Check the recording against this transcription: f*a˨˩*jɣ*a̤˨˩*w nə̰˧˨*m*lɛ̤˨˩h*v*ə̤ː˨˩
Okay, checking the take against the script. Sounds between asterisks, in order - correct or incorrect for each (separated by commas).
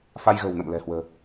incorrect, incorrect, correct, incorrect